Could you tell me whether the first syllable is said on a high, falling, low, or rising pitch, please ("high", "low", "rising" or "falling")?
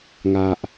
low